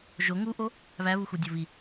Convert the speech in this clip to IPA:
ʒ o ŋ u ʔ o | β æ β u x u dʲ o β i

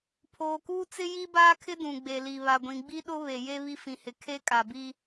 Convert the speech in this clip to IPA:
pʰ oː˨ k uː˦ t͡s ɪ˦ j i˦ b aː˦ kʰ ɪ˦ d ũ˨ ɡ͡b e˨ l i˨ β a˨ ɡʷ ĩ˨ ɡ͡b i˦ ɗ ʊ˦ β e˨ j e˦ β i˦ f ĩ˨ h ɪ˨ kʰ e˦ kʼ a˨ b i˦

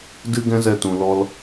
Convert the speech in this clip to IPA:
d ɨ˦ ɡ ɛ̃˦ z ɛ˧ t ũ˨ l ɔ˧ l

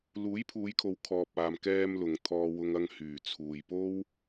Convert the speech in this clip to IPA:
l uː˨˥ j pʰ uː˨˧ j kʰ o˨˧ w kʰ ɔː˨ p̚ aː˨ m k ɛː˧ m l ʊ˨ ŋ t̪ʰ ɔː˧ w ʊ˧ ŋ ɐ˧ ŋ h yː˨˩ t͡sʰ uː˨ j p o˥ w

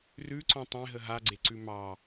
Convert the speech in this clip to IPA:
r ʉ ǀ ɔ̃ tˤ ẽ ɦ ə ɦ a ɡ͡ǀ e ǀ ʉ m ɑ

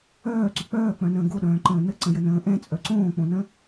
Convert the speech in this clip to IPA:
œː ǀ ʏ k͡p œː k͡p œ̃ n ə̃ː ɡ o ɗ œ̃ː ǃ ə̃ː n ə ǀ ə̃ j ə n ə̃ː ʔ ɛ̃ t͡sʼ œ ǀ õː k͡p õ n ə̃

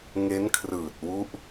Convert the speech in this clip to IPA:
ŋ e˦˥ n kʰ r ɯː˨˩ t̚ w u˦˥ ʔ

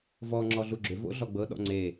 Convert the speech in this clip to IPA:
v ɔ ŋ͡ǁ ɔ ɮ u ɡ͡ǁ ʏ v o̰ ɮ ɔ ɡ͡b ɤ ɗ ɔ̰ ŋ͡ǀ e

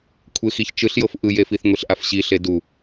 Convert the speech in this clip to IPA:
kʷʰ e x i ç t͡ʃ ɯ ɬ j ɤ f ʔ ɯ j e f i θ ŋʷ i ɬ ʔ a f ɕ i ɬ e d u

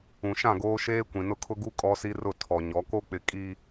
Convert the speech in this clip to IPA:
ũ˨ ʃ ã˦˨ ɡ oː˦ ʃ eː˦ kʷ ĩ˨ n ʊ˦ kʰ ʊ˦ ɡ u˦ kʼ ɔ˦ s i˦ r ʊ˦˨ tʰ ɔ˨ ɲ ɔ˨˦ k o˦ k͡p ɪ˨ kʼ i˨

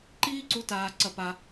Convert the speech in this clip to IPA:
ǃ iː˦ ǀ u˧ t aː˧ ǀ ɐ˧ p a˧

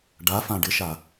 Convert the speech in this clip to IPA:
ɖ a f ã ɖ ɪ ʃ a

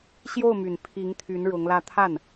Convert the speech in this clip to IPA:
ɕ j o˥˩ ʊ̯ m y˨˩ n pʰ i˧˥ ŋ t̪ʰ y˧˥ n ɻ ʊ˧˥ ŋ l ä˥˧ t̪ʰ a˥˩ n

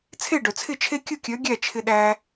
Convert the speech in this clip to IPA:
t͡sʰ e˥˨ ɖ œ˩ t͡sʰ ɪ˥˨ t͡ʃʰ e˥ kʲ ɯ˥˨ kʲ œ˨˥ ɡʲ æ˥˨ t͡ʃʰ ɪ˧ ɗ æ˧

